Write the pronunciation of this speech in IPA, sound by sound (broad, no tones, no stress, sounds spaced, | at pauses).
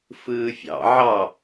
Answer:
f ɯː fʲ ɑ̰ ʕ ɑ